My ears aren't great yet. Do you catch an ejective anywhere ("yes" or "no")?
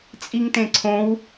yes